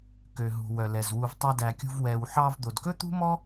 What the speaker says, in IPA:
k ø˨ ɦ ṳ˨ w œ˨ l ɛ˨ z w u˨ v tˤ æ˧ d æ˨ kʲ ṳ˧ v w ɛ˨ w ħ ɑ˧ v d̪ o˨ d k ɵ˦ t̪ ṳ˦ m ɔ˦

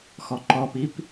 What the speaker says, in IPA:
x ɔ ǃ ɔ p i p

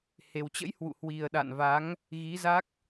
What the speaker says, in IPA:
h e˨˩ w t͡ɕ ə̰˧˥ j h w ṵ˧˨ h w i˨˩ ə̯ ɗ a̰˧˨ n v a˨˦ ŋ | ɣ i˨˦ z a˦˥ k̚

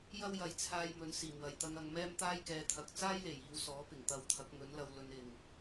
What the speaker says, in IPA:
j ɐ˥ w j ɐ˨ j t͡sʰ aː˧ j m ɵ˨˥ n s iː˨˩ m w ɐ˨˩ j t̪ ɐ˧ ŋ ɐ˧ ŋ m ɛː˥ m t̪ aː˥ j k ɛː˨˧ t̪ʰ ɐ˨ k̚ t͡s aː˥ j l e˨˩ j iː˨˧ w s ɔː˨˥ p ɪ˨˩ ŋ t̪ ɐ˨ w t̪ʰ ɐ˨˥ k̚ ŋ ɵ˨˥ n l ɐ˧ w l ɵ˧ n ɪ˨ ŋ

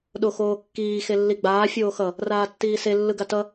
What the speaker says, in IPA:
ɗ o x oː kː iː x e lː i ɡ͡b aː fʲ oː x ʌ | r aː tː iː s e lː ɯ ɡ a t ʌ

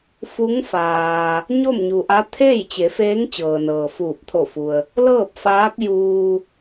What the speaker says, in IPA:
f u˧˥ ŋ f aː˩ | ɲ o˥˨ m ɲ u˩ ʔ a˧˥ t̪ʰ eː˥˨ j t͡ɕ e˩˧ f eː˧˥ ŋ t͡ɕ ɤː˩ n ɤː˩ f uː˧˩ p̚ t̪ʰ o˧˩ f u˩ ə̯ | l ɤː˥˨ p̚ f aː˧˥ k̚ j uː˧

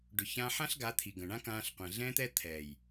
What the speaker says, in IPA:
ɖ ʏ˨ ç ãː˧ ħ ã˦ ɬ ɡ a˨˦ t̪ʰ i˨ ɡ ə̃˨ ɳ ã˦ k ãː˧ ɬ qʷ ɛ̃˨ ɮ ɛ̃˦ t̪ ɛ˦ t̪ʰ ɛ˨ j

